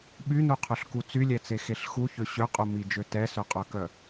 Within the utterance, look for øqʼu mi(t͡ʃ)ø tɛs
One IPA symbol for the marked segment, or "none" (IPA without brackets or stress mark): d͡ʒ